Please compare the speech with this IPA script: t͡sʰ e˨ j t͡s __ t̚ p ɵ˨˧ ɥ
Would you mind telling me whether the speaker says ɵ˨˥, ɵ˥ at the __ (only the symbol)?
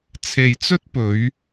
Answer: ɵ˥